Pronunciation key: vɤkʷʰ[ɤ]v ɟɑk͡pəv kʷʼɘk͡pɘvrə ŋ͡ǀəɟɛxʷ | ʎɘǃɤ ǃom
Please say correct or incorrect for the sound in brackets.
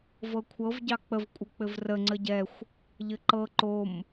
correct